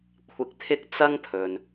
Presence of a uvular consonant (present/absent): absent